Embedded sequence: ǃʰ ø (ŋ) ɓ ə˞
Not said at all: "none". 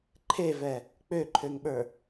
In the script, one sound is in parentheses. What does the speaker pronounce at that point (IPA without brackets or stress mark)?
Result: ŋ